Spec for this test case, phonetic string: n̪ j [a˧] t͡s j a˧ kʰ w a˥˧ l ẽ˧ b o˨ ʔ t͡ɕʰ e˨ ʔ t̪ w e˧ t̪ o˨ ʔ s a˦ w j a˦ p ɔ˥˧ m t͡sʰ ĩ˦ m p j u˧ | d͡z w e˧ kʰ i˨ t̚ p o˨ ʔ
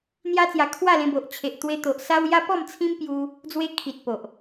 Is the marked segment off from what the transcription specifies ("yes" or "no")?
yes